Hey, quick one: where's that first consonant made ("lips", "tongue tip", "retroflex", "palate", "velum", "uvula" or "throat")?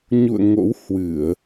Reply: palate